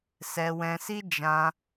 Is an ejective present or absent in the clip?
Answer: absent